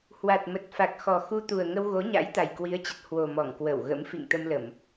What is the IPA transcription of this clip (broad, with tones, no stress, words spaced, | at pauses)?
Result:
hwa˨˩t̚mə˨˩t̚fa˨˩k̚xɔ˨˩ xu˧t̪u˨˩ə̯ŋə˧w ɣo˨˦ɲa̰˧˥jt̪a˨˩j kwi˨˦ə̯t͡ɕə˨˩t̚ hwo˨˩ mɔ˧˩ŋkwə˧˩wɣə̰˧˥m fḭ˧˨ŋt̪ə˧mlə˧˩˨m